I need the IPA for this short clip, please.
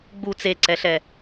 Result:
ɡ͡bu t͡seǀɛɬɛ

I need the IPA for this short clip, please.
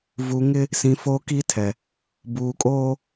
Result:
vu˨ŋɪ˦ | sĩ˨ foː˦ki˦tʰɛ˨ | buː˨kʼoː˦

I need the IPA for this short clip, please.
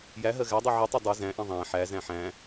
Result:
jæɦɜ ɣædˤi ʕitˤu dˤi zæ̃ʔĩ ðˤæ̃ ħæzæ̃ ħæ̃

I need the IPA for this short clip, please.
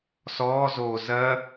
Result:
sɔːzoː zɜ

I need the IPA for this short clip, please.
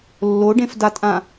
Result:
lːoɖẽfdatʼã

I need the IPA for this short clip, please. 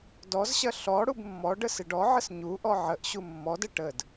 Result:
dɔzɕɐ ɬɔ ɽubmːɔɖə sɪɖɔʕəs ɲuʔɔ ʕəʔɕu mːɔdə ʈəd

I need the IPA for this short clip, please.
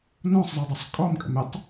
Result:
nɔ̃sˤzˤɜdˤʌsˤ kʼɔmkʼə̰m ɪtˤ

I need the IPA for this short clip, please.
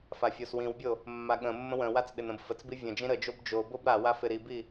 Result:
fafʲoswĩwbʲo | mːaɠə̃mːə̃ wə̃wat͡s ɗɪnə̃bfət͡sbi vʲə̃ d͡ʒĩɾəd͡ʒob d͡ʒo bobɾawa fɪɾibi

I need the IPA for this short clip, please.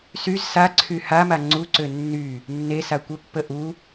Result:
syz saǀʰy hama ŋ͡ǀuǀø nːy | nːe sakʷə pːəʔu

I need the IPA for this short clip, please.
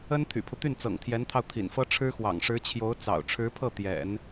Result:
ə˥n t̪ʰy̰˨˩pʰu˦t̪y˥˩nt͡sɤ̰˨˩ŋ t̪ʰjɛ˧˥nt̪ʰɑ˧ʊ̯ t̪ʰḭ˨˩nfɤ˥ ʈ͡ʂʰɻ̩˥xwɑ̰˨˩ŋ ʂɻ̩˧˥t͡ɕʰjo˧˥ʊ̯ t͡sɑ̰˨˩ʊ̯ ʈ͡ʂʰɻ̩˧˥pʰɤ˥˩ t̪jɛ̰˨˩˦n

